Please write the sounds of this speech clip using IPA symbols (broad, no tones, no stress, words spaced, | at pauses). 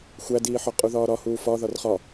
xʷædiːħɒ qʼuðɒːɾɒ huːfɒ ðɒrχɒ